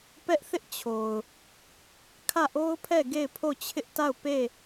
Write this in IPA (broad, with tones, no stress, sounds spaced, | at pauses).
p ɛ˦ ʔ θ ɪ˦ ʔ t͡ɕʰ o˨ ʊ̯ | kʰ ä˦˨ ʔ o˦ ʊ̯ pʰ ɛ˦˨ ɡ e˦˨ ɪ̯ pʰ o˦˨ t͡ɕʰ ɪ˦ ʔ t a˦˨ ʊ̯ p e˦˨